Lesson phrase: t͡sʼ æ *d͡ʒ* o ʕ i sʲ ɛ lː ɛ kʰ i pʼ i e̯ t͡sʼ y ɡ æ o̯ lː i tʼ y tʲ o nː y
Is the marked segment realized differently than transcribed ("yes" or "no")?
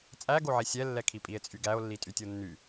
yes